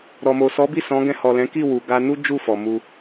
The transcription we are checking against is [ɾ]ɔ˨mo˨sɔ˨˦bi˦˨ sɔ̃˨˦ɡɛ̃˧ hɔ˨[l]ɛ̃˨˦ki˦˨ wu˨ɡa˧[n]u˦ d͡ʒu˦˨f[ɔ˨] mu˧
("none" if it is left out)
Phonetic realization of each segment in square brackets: ɾ, l, n, ɔ˨

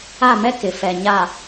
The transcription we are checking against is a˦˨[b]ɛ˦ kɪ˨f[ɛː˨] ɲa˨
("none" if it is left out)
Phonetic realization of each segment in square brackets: m, ɛ˨

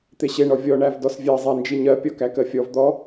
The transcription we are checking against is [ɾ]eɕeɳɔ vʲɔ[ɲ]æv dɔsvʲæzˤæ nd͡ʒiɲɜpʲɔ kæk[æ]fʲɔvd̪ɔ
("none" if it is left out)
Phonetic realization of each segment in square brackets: t̪, ɳ, ɜ

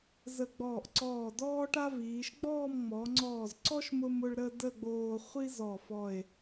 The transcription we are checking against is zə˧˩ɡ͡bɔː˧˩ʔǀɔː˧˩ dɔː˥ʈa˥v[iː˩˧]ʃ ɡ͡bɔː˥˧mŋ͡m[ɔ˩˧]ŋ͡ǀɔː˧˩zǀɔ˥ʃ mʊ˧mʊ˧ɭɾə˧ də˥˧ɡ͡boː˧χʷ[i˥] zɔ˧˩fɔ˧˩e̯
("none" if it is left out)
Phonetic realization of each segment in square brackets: iː˩˧, ɔ˩˧, i˥

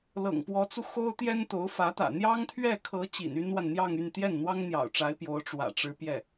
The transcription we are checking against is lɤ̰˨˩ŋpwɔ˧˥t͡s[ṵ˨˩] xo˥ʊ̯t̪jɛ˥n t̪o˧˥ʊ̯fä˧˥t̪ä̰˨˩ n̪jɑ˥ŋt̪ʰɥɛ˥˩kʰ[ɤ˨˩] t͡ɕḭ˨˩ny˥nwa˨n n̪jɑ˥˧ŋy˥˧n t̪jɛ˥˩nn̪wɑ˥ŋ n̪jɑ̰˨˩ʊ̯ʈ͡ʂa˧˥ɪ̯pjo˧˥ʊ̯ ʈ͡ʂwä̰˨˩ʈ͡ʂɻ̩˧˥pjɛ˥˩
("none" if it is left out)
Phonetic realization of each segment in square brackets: u˧, ɤ˧˥

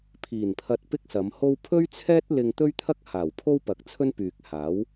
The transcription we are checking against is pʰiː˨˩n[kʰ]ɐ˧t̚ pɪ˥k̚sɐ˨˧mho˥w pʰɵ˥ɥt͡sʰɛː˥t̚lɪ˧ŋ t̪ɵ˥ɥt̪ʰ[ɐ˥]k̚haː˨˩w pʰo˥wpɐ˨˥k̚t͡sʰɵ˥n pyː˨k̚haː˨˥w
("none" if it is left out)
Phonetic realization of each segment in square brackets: pʰ, ɐ˥

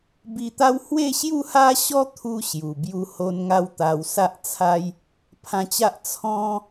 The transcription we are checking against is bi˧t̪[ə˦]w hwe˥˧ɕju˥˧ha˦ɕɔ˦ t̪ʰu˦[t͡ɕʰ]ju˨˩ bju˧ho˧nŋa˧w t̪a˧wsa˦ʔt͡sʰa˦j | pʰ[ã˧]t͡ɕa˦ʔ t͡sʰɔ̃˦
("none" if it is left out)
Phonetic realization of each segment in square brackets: a˦, ɕ, ã˧

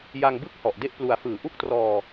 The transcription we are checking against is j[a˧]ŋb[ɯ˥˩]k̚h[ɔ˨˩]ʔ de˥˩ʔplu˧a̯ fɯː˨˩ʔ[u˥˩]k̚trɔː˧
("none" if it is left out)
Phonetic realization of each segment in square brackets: a˧, ɯ˥˩, ɔ˨˩, u˥˩

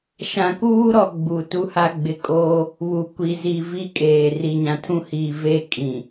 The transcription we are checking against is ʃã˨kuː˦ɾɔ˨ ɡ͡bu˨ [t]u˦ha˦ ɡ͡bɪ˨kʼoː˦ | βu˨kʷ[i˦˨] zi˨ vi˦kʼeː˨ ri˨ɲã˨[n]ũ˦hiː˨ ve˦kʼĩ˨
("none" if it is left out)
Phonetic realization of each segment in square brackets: t, i˨, tʰ

